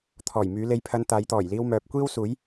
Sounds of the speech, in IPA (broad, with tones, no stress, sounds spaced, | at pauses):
t̪ʰ ɔː˨˩ j m yː˨˧ l e˧ j pʰ ɐ˧ n t̪ aː˨˧ j t̪ ɔː˨˩ j l iː˧ w m œː˨ p̚ kʷ iː˥ w s uː˨˥ j